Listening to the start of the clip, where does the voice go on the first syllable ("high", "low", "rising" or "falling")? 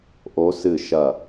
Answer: rising